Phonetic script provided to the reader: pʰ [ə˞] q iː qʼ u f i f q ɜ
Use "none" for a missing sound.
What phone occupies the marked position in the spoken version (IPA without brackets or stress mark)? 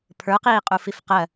ə˞